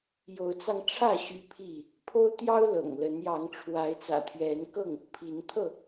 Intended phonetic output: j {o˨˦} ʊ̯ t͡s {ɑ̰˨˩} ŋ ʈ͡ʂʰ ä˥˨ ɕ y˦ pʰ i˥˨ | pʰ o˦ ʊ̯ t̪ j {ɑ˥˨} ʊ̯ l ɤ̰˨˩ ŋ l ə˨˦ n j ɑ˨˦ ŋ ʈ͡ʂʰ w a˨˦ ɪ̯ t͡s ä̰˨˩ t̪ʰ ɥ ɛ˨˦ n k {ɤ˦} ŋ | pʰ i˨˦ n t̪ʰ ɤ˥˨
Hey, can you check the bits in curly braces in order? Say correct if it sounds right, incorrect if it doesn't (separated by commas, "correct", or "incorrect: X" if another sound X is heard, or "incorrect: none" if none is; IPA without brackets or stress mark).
correct, incorrect: ɑ˧, incorrect: ɑ˦, incorrect: ɤ˥˨